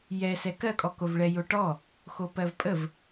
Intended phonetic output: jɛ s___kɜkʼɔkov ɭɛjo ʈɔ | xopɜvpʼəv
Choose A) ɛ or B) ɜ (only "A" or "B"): A